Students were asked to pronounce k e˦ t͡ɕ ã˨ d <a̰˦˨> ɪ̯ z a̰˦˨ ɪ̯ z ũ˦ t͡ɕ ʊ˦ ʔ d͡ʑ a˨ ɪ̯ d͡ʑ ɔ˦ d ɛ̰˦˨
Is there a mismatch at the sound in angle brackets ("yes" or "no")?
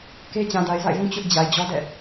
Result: yes